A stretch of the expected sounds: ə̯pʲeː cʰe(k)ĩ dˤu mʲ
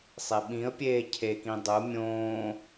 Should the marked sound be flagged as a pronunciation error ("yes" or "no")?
no